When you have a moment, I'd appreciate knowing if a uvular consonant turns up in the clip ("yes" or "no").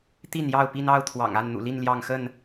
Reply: no